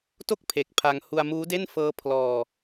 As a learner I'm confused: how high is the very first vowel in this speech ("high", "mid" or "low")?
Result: mid